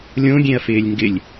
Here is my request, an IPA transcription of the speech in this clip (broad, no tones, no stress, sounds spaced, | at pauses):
lʲ õ ɡʲ ẽ ɐ̯ f ɪː lʲ ŋ ɡ ɪ lʲ